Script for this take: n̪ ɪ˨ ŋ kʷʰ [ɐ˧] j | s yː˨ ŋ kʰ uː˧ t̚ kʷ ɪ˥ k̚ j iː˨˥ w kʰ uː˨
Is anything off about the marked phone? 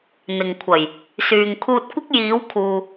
yes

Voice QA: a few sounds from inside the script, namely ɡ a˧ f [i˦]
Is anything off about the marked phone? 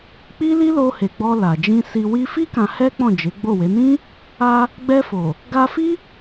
no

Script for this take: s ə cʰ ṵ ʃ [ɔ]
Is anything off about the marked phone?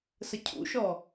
no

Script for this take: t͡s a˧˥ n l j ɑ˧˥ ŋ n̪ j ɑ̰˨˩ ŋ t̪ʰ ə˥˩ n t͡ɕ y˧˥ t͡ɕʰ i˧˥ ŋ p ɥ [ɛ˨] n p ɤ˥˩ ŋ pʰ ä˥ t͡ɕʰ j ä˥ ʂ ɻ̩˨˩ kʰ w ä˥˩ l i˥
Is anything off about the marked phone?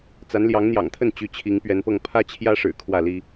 yes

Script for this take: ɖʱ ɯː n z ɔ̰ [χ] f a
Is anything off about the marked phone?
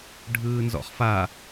no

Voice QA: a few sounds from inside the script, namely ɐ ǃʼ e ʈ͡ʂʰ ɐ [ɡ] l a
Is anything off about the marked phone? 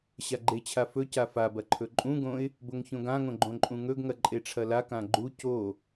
yes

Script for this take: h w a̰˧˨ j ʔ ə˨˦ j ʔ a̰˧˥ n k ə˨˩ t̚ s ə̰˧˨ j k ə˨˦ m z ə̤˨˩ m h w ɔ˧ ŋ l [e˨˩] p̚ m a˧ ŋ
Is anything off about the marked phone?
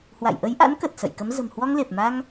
no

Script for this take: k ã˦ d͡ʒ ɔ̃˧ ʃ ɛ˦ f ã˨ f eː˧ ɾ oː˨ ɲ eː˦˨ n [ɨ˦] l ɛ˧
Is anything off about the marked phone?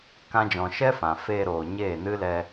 no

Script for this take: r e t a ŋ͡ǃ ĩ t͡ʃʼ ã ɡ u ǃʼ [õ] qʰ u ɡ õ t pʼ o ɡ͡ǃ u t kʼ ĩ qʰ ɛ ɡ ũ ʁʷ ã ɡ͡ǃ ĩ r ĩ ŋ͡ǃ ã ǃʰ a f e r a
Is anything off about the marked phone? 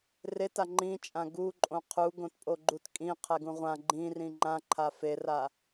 no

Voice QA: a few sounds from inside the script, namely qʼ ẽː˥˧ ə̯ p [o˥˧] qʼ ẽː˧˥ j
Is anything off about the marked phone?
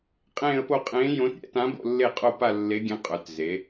no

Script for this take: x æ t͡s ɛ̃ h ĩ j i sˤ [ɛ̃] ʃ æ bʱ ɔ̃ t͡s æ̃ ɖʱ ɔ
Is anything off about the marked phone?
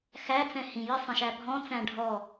yes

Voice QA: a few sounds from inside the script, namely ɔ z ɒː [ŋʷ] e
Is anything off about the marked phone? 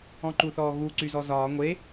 no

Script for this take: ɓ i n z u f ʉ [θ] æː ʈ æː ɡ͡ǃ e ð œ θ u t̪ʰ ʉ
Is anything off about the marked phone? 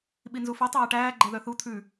yes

